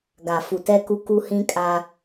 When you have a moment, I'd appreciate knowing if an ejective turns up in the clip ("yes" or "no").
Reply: yes